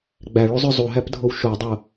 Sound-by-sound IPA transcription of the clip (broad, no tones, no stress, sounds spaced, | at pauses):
ɡ͡b æ ɭ u zˤ ø zˤ u ɦ æ p dʱ o w ʃ o dˤ o